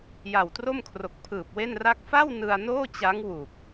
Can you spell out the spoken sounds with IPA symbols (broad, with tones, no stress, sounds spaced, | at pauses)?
j a˨˩ w t r o˥˩ m kʰ r o˨˩ k̚ pʰ ɯː˨˩ p̚ w e˥˩ n r a˥˩ k̚ f a˥˩ w n ɯ˧ a̯ n oː˥˩ t͡ɕ a˦˥ ŋ w u˨˩ k̚